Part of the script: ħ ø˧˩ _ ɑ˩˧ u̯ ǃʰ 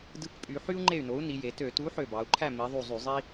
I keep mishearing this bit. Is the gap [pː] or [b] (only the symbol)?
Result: b